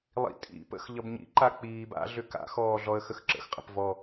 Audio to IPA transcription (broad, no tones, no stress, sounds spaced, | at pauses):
lˠ ḭ tʼ ḭ p ə̰ x ʎ ʌ b ɲ ḭ ǃ a k͡p iː b a̰ ɮ ʏ k a̰ x ɔː ɮ ɔ ə̯ x ə x ǁ ə̰ x qʼ ə̰ p v ɔ